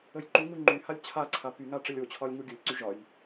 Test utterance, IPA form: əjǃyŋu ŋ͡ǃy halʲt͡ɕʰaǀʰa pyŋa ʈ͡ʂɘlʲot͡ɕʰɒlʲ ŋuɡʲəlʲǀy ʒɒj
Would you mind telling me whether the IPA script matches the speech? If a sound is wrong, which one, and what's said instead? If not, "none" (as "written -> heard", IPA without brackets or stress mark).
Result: none